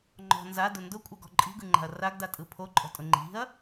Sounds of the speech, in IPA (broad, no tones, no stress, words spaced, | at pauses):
ŋ͡ǃɔ̤ nzadʊ ndʊkʷʼaɡɔ̤ ǃʼi̤ɡɯŋ͡ǃa̤ɐ̯ raɡdatʼɯ pʰoǃʼɔ̤tʼʊ ŋ͡ǃi̤ɐ̯